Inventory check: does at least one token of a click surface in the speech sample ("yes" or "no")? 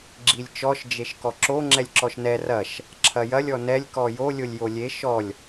yes